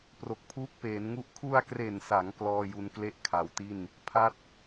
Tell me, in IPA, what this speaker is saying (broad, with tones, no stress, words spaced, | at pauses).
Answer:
pro˨˩k̚pʰuː˦˥k̚peː˩˦nŋu˦˥ʔ kʰu˧a̯kre˨˩nsa˩˦ŋ klɔː˥˩ju˦˥n kle˦˥ʔ kʰa˨˩wti˥˩n | pʰa˥˩t̚